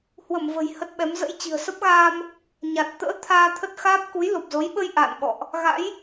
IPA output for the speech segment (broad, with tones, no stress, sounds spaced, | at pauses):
h w ə˧˩ m v ə̤˨˩ j h ə˦˥ t̚ ɓ ɛ˨˦ m z ə̰˧˥ j t͡ɕ i̤˨˩ ə̯ s ə˦˥ p̚ ɣ aː˧ m | ɲ a˨˩ t̚ t̪ ə̰ː˧˥ t̪ʰ aː˧ t̪ʰ ə˦˥ t̚ x aː˦˥ p̚ k u˨˦ j l o˨˩ p̚ z o˨˦ j ɓ ə˧ j ʔ a̰ː˧˨ n ɓ ɔ̰˧˨ ʔ | ɣ a̰˧˥ j